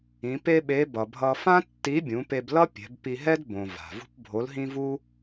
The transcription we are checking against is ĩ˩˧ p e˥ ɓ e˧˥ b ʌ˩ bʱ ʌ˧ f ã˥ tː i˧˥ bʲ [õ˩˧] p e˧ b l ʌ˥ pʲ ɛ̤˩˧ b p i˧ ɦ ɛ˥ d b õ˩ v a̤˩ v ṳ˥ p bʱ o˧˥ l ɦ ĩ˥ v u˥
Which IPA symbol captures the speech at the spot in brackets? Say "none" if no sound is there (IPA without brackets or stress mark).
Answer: ũ˩˧